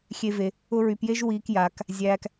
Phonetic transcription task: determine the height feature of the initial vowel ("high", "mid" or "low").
mid